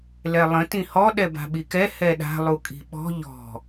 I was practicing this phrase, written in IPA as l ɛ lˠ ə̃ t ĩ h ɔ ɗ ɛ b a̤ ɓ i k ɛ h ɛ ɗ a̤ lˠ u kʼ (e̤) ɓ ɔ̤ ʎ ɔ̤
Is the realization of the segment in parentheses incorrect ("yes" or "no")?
yes